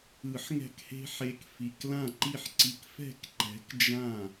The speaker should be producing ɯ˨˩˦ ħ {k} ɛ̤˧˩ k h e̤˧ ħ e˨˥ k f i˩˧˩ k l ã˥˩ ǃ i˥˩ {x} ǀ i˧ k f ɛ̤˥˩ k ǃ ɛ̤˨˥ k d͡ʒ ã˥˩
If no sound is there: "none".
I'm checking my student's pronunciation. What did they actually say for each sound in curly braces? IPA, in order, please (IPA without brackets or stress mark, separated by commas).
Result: ŋ, ħ